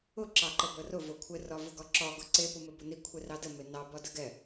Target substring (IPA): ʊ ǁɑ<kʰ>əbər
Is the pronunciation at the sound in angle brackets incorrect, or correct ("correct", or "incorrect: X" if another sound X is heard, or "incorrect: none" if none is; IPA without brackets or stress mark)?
incorrect: ǃ